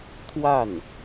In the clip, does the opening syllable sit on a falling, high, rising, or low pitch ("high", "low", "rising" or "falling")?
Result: falling